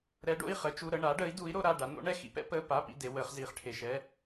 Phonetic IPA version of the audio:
ɾ ɛ˧˥ ɖ o̰˧˥˧ i̯ χ ə˧˥ t͡ʃ u˧˥˧ ɾ ə˧˥˧ ɳ aː˧˥ ɖ əː˧˥ i̯ d uː˧˥ i̯ ɾ o˧˥ ɾ a˧˥˧ ɖ a˧˥ n o̰˧˥ ɳ ɛ˧˥˧ x ḭ˧˥ p ɛ̰˧˥ p əː˧˥˧ p a˧˥˧ p ḭ˧˥˧ d e˧˥ w əː˧˥ χ z iː˧˥ χ ʈʰ e˧˥˧ ʃ ɛː˧˥˧

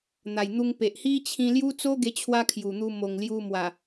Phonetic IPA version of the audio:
n̪ a˨˩ j n̪ u˧ ŋ p e˨ ʔ h i˦ t͡ɕʰ ĩ˧ l j u˦ t͡s o˦ ɡ e˧ t͡ɕʰ w a˧ kʰ j u˨˩ n̪ u˧ m o˨˩ ŋ l j u˧ m w a˨˩

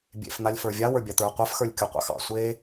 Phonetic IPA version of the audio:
bʲ ḛ f n̪ a lʲ f ə˞ vʲ a w ə˞ bʲ a t̪ ə˞ qʷ a f x ə˞ lʲ kʲ o qʷ ɑ̰ x ɑ̰ sʷ e

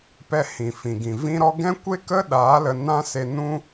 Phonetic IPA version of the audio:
p ɛ˧ h ĩ˨ f ĩ˨ ɡ ĩ˨ v ĩ˦ ɾ ɔ˦ ɡ ɛ̃˦ kʷ e˦ k ə˦ ɗ aː˨˦ l ə˧ n ã˦ s e˧ n ũ˦

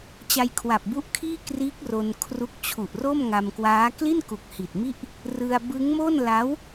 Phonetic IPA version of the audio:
t͡ɕ a˧ j kʰ w a˨˩ p̚ b u˦˥ ʔ kʰ iː˥˩ k r iː˦˥ k̚ r o˧ n kʰ r u˦˥ k̚ t͡ɕʰ u˨˩ ʔ r o˥˩ m ŋ a˧ m k w aː˦˥ k l i˥˩ n k u˨˩ k̚ h i˨˩ t̚ m i˥˩ ʔ | r ɯ˧ a̯ b ɯ˦˥ ŋ m o˥˩ n l a˦˥ w

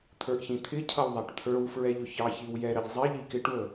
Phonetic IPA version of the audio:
t̪ʰ ə˞ ʔ ç ĩ t̪ʰ ɪ cʰ ʌ w ðˤ æ ʈ t̪ʰ ə˞ w f ɹ ɛ ʎ ʊ ç ɑ ç i w j ɛ ɾ ə ʎ zˤ i ʎ i k ɪ ʈ w ə

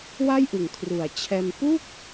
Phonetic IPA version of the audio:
w a˥˩ j ʔ ɯ˨˩ ŋ kʰ r u˨˩ a̯ t͡ɕʰ ɛː˧ m p u˥˩ k̚

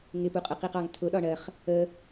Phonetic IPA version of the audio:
ŋ ɪ p u qʼ ɜ q i q ɑ ŋ tʰ ʊ ɗ ɒ ɳ ɜ χ | ə

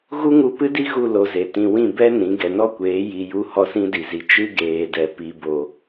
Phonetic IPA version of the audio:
ɣ u˦ ŋ u˧ p ɨ˦ d i˦ ɣ u˦˨ l o˧ z e˨ t ĩ˧ w ĩ˦˨ b ɛ˦ n ĩ˨˦ ɡ ɛ˨ n ɔ˦ kʷ eː˨˦ j i˧ j u˦ h ɔ˦ s ĩ˧ d i˨ z i˨ t͡ʃ ɨ˦ ɡ eː˧ d ɛ˧ p i˧ b o˧

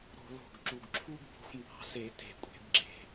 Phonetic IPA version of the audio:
ɾ o̤˧˩˧ l o̤˨˩ ɡ ǁ u˨˩ ɡ ǁʰ u˥ ɡ b o̤˧ xʷ m b ɑ̤˧ s e˧˩˧ t e̤˧˩˧ kʷʼ e̤˧˩˧ b ɡ͡ǁ e̤˨˩

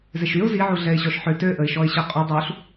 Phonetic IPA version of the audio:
z e ʃ y ʊ̯ z i ʕ u ɮ ɛ ɪ̯ ɕ ɔ ʃ ħ ø t ø ʔ ə ɪ̯ ʃ ɔ ɪ̯ ɕ ə qʼ u dˤ u ɬ

